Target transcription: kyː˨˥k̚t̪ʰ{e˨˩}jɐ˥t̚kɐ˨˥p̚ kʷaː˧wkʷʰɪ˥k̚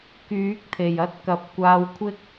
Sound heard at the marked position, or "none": e˨˩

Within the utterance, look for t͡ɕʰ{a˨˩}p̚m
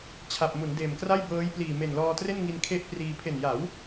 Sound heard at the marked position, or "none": a˨˩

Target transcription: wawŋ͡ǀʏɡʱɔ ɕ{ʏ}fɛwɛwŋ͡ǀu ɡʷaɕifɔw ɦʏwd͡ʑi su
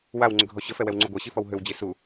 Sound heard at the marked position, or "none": ə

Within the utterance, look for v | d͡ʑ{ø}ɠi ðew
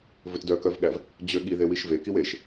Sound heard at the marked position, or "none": ø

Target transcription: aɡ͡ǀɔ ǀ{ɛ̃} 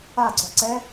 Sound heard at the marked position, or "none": ɛ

